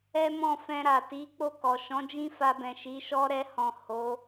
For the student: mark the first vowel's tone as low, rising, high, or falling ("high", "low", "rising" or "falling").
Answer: high